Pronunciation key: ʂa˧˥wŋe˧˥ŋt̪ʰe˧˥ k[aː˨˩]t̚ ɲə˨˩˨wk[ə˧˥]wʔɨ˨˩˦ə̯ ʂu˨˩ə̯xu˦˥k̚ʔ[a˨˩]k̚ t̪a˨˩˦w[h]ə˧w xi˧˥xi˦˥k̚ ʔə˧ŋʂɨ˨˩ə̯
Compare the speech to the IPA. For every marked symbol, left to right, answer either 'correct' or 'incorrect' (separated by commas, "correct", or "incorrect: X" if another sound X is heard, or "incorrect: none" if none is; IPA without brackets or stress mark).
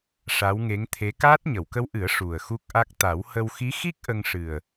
incorrect: aː˦˥, correct, incorrect: a˦˥, correct